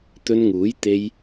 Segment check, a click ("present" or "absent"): absent